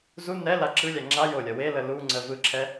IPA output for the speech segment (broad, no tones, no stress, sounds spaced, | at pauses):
z u n ɛ l a ǁ ɯ lʲ æ ŋ͡ǁ a j o lʲ ɐ w e l ə l u ŋ͡ǀ ə v ɯ ǁʰ ɛ